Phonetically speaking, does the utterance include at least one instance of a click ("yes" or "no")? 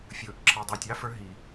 yes